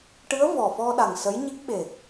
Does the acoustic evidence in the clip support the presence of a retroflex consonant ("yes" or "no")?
yes